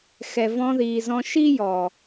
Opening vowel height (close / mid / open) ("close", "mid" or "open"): mid